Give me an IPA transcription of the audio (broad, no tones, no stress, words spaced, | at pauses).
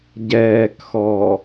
ɟɛːkxɔ